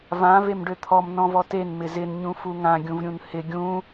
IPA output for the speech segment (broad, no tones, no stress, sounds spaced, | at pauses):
v ã v e m ɖ ø t̪ʰ ɔ m n ɔ̃ v ɔ t e n m ɪ z ɪ n ɲ ũ f u ŋ ã ɡʲ ũ v ɾʲ ũ n h ɪ ɡʲ ũ